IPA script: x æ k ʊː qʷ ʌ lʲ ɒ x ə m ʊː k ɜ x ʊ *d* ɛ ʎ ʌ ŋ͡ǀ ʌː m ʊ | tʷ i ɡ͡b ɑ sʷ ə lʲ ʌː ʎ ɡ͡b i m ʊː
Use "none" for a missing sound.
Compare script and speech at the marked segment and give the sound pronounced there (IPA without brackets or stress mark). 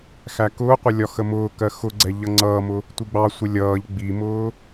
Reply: ɡ͡ǀ